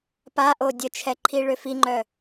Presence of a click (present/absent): present